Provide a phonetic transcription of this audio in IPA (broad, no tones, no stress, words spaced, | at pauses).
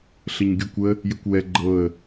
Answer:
ɬəɲɡʲukʷə | jəkʷwɛ ɡ͡ǃɤə̯